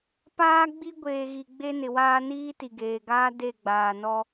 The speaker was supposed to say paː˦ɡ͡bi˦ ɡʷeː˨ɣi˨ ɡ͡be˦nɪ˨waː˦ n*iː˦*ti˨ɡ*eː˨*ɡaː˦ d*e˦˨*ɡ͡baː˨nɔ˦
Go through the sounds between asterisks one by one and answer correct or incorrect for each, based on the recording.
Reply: correct, correct, correct

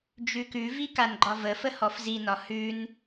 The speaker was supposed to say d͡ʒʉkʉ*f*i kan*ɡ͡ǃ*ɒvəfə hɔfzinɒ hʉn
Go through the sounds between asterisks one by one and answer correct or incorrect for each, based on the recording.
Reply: incorrect: v, correct

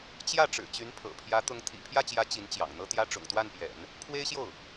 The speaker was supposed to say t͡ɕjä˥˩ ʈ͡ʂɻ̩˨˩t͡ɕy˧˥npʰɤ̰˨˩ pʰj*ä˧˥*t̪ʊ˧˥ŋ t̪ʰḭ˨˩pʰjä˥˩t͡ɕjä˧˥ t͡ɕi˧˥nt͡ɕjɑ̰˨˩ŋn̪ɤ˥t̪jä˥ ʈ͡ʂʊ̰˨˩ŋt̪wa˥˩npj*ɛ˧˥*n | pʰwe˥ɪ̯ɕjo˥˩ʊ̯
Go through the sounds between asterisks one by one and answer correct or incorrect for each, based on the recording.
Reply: correct, incorrect: ɛ̰˨˩˦

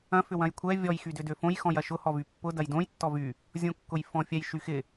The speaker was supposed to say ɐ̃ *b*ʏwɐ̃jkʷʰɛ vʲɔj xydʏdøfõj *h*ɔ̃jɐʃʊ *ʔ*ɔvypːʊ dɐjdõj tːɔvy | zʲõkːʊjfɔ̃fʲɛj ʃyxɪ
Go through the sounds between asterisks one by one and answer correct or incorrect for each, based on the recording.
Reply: incorrect: f, incorrect: x, incorrect: h

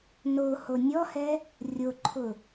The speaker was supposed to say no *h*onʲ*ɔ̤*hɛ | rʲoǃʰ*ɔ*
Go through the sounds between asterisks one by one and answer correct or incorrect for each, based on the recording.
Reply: correct, incorrect: ɔ, incorrect: ʊ

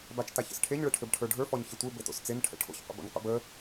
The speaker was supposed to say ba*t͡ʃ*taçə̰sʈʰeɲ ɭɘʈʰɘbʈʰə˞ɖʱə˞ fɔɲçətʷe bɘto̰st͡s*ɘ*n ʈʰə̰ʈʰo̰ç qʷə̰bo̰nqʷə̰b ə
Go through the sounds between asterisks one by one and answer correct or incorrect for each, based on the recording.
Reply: correct, incorrect: e

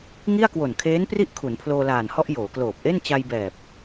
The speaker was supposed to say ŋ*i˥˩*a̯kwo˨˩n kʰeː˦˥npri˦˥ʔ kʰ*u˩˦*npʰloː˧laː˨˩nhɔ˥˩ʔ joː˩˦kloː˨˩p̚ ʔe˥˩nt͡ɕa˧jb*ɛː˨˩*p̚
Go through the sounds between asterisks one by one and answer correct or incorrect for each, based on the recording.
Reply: correct, correct, correct

